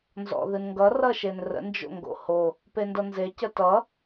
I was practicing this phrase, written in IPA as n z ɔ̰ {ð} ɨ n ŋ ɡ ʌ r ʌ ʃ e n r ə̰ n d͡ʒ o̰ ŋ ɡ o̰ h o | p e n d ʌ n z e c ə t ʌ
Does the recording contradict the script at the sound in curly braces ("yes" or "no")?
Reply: no